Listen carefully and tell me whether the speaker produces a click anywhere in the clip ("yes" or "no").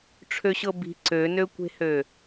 yes